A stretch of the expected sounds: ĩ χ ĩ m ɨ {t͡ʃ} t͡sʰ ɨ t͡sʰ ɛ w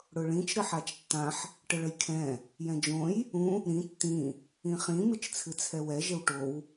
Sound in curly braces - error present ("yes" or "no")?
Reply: no